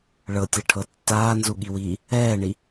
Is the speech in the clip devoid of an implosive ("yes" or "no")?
no